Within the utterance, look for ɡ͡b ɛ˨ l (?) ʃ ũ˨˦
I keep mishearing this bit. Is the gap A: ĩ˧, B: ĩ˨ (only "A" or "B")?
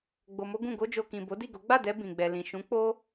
B